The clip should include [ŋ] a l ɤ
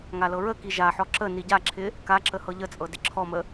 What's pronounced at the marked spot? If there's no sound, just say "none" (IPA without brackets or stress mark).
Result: ŋ